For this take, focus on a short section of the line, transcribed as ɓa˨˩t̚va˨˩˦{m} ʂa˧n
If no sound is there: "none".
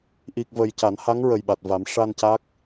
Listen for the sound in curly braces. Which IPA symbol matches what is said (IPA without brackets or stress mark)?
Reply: m